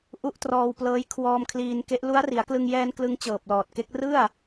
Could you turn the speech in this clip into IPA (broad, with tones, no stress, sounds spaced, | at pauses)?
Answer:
ʔ u˦˥ ʔ t r ɔː˧ w p l ɤː˦˥ j kʰ w ɔː˧ m kʰ l iː˧ n k e˦˥ ʔ l u˦˥ a̯ r i˩˦ a̯ k l ɯ˧ ŋ j ɛː˧ n k l ɯ˦˥ ŋ t͡ɕ ɤː˨˩ p̚ l ɔː˨˩ t̚ k e˦˥ k̚ r ɯ˥˩ a̯